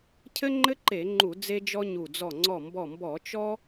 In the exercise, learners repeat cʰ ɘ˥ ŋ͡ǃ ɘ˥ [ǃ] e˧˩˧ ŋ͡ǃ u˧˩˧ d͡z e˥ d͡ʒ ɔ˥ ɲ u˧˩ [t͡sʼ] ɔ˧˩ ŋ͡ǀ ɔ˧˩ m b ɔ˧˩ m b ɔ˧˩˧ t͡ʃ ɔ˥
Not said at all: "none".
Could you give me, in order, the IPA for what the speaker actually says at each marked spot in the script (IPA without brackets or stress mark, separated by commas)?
ǃ, d͡z